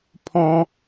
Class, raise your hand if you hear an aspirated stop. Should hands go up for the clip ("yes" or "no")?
yes